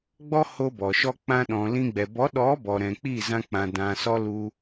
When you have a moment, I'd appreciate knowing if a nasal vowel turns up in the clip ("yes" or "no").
yes